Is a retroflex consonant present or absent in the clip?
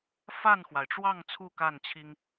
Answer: present